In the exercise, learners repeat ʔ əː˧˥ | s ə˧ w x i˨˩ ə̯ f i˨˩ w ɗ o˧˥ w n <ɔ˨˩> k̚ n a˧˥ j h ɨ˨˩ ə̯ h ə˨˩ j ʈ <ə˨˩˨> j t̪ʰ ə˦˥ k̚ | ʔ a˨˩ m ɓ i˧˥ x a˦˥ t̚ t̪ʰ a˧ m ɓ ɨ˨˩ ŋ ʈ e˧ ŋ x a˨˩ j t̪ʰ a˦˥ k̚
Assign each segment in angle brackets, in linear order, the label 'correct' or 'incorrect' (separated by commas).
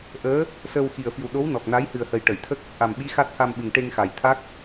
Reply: correct, correct